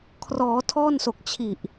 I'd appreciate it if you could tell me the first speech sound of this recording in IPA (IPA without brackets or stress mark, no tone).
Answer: kʰ